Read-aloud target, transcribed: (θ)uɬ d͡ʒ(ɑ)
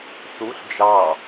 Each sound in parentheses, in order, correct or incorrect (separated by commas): correct, correct